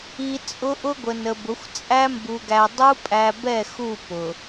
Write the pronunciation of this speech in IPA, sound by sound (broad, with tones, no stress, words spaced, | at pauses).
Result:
i˨ t͡sʼʊ˦ ʔʊ˦ɡʷə˨nə˨bʊ˨˦xʷ t͡sʼæ˦mbu˨ɡæ˨ dˤu˦pʼæ˨bɛ˦˨ xu˦˨ pʊ˨